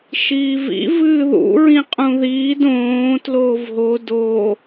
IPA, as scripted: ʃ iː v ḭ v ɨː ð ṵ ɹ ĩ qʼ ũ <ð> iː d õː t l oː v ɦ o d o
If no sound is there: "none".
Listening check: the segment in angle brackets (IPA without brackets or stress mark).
ð